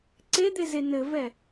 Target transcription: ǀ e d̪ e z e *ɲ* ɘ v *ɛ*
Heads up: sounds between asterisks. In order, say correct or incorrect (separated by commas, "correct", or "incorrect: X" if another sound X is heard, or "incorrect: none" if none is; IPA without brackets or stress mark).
incorrect: n, correct